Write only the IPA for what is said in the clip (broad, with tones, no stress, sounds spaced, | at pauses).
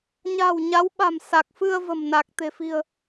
ɲ a̤˨˩ w ɲ a˨˦ w ɓ a̤˨˩ m s a˨˩ k̚ f ɨ˧ ə̯ v ə̤˨˩ m n a˨˩ k̚ t̪ e̤˨˩ f i̤˨˩ ə̯